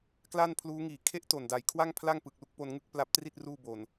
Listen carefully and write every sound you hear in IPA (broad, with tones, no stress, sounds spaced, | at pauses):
k l a˥˩ n pʰ l uː˦˥ ŋ iː˨˩ kʰ e˥˩ ʔ t o˨˩ n d a˨˩ j kʰ w a˥˩ ŋ pʰ l a˥˩ ŋ p ɯ˨˩ k̚ l u˥˩ k̚ p o˧ n ŋ ɯ˥˩ k̚ p l a˦˥ p̚ t r i˥˩ t̚ r uː˥˩ b o˨˩ n